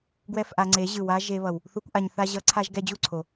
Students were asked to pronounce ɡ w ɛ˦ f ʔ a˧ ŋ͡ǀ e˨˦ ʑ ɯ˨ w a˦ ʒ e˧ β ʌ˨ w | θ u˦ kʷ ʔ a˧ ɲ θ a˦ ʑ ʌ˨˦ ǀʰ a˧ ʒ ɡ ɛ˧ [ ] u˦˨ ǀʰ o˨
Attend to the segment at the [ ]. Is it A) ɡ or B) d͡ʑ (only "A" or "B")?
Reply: B